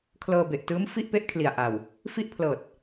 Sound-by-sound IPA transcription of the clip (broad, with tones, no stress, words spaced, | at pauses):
kʰlɤː˧be˨˩ʔtɯː˦˥mfi˥˩ʔ pe˥˩ʔkʰli˨˩a̯ʔa˨˩w | fi˥˩ʔpʰlɤː˨˩t̚